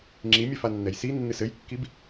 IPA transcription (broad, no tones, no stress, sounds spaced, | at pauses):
ŋ͡ǁ i mʲ ɛ f a nː ɛ j s i nː ɨ s ɘ j kː i b